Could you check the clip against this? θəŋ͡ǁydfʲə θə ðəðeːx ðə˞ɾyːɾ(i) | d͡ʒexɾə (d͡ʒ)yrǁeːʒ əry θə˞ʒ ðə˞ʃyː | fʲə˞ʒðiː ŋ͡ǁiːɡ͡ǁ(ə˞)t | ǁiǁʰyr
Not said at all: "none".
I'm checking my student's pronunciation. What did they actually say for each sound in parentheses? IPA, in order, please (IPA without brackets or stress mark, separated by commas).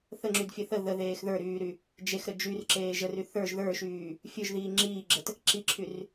y, d͡ʒ, ə